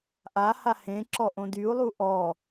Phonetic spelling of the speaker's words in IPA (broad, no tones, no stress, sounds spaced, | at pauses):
ʔ a h a h ẽ ǁ ɔ ʔ õ d y u̯ lˠ u ʔ ɔ